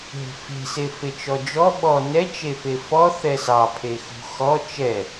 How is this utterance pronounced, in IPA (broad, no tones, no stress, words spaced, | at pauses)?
ɦe̤fe̤se fet͡ʃɔd͡ʒɔ ɓɔ nɛt͡ʃefe fɔ θɛsɑ pʰexṳ xɔ t͡ʃɛ